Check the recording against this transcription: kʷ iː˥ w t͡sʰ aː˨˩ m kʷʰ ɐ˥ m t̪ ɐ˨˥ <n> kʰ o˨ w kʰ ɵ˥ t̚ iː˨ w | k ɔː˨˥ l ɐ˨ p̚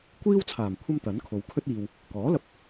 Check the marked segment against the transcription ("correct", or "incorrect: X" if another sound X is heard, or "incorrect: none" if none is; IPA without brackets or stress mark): correct